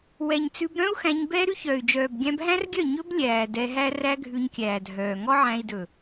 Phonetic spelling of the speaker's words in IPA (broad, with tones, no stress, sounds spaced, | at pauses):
w ɛ˨ ɲ t͡s ʉ˧ b ɾ œ̃˦ u̯ x æ̃˧ ɲ b ɛː˦ ɾ ʉ˦ ç œː˨ y̯ d͡ʒ œː˨ b ɡʲ æ̃˧ b ɦ æ̃˦ r ɡʲ œ˦˨ ɲ ɵ˦ b lʲ æː˨ d ɛ˧ ɦ æ˦ r æ˦ ɡʱ ʉ˧ ɲ kʲ æː˨ dʱ œː˨ ŋ ɔ˦ ʕ æ̃˧ i̯ d ɵ˨